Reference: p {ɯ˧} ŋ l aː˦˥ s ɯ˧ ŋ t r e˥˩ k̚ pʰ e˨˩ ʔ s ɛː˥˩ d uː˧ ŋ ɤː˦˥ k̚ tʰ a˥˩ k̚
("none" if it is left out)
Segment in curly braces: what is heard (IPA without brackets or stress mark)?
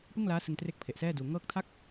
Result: ɯ˥˩